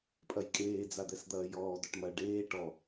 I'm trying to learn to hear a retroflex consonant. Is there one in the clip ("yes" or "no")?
yes